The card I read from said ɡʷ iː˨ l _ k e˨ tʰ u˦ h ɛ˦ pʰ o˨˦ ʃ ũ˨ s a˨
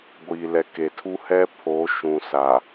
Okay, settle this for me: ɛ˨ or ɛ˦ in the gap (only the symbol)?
ɛ˨